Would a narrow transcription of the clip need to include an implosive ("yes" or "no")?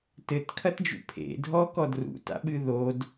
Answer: yes